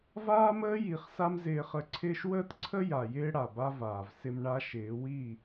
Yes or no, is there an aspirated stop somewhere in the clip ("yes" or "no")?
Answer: yes